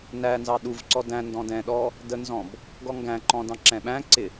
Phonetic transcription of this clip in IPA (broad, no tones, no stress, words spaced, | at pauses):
nænzɑ ɗuvǀɔ dæ̃ndɔ̃ dɛ̃ɗɔ | dənzɔ̃b | ɡɔŋɡæ̃ǃɔ̃ dɑ̃ǁɛ̃ɓæ̃ǀɪ